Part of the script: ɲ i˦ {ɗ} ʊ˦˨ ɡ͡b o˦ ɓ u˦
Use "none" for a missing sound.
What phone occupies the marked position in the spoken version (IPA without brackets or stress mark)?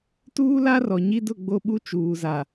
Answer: d